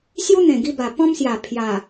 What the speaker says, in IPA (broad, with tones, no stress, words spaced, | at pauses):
sju˦n̪ẽ˨˩ɡi˧ba˨˩ pɔ̃˦msja˨˩ pʰja˨˩